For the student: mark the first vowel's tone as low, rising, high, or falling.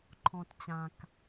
low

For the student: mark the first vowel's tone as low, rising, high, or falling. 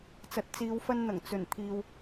low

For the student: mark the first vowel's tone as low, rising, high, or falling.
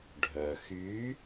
low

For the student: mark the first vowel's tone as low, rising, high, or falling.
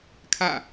falling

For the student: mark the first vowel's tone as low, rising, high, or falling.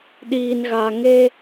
low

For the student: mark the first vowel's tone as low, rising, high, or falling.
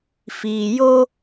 low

